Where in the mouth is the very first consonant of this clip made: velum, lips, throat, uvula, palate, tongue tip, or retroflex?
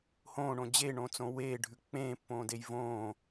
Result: throat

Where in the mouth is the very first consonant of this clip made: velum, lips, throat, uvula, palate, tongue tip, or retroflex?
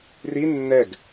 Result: tongue tip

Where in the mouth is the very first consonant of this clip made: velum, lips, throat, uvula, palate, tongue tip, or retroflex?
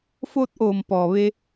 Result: lips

